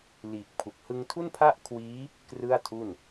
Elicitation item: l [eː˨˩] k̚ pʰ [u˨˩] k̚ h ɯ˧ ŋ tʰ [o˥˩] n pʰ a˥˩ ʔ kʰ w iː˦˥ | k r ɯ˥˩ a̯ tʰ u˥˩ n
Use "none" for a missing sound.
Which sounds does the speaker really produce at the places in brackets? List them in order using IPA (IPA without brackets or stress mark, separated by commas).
iː˨˩, u˨˩, u˥˩